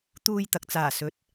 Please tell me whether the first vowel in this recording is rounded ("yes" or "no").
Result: yes